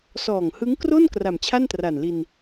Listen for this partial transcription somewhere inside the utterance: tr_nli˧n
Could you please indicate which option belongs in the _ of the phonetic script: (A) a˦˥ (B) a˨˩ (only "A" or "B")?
B